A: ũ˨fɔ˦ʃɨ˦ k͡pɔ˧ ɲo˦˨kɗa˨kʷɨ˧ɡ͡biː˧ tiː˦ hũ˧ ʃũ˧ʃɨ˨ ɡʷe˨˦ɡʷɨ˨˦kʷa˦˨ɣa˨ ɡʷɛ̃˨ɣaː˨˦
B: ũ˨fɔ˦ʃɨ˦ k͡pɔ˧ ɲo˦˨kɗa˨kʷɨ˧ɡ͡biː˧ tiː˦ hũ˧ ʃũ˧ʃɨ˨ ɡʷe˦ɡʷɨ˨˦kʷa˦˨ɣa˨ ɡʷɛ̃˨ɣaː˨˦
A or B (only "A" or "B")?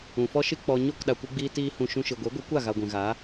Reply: A